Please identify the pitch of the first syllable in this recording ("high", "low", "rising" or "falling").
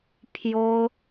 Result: high